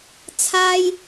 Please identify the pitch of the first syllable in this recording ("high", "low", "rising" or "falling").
high